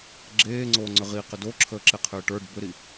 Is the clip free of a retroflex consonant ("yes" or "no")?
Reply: no